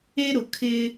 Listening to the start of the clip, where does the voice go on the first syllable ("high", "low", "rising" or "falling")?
high